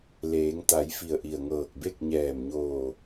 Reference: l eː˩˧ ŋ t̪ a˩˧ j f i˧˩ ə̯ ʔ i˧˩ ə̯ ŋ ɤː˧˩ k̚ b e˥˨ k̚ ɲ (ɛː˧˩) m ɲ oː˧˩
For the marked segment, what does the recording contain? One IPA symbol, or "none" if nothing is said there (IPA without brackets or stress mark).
ɛː˧˩